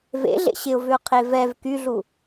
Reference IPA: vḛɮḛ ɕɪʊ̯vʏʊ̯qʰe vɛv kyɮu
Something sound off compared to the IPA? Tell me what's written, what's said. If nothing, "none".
none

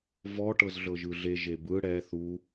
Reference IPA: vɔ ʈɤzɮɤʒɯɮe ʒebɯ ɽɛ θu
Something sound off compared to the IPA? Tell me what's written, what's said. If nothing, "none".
none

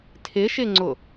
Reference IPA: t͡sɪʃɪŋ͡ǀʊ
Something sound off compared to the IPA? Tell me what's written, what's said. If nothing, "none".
t͡s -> tʰ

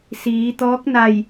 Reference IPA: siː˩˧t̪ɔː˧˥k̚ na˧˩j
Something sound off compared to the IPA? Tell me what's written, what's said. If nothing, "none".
none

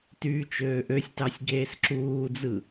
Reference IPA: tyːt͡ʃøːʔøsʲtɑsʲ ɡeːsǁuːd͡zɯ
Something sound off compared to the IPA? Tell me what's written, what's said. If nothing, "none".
none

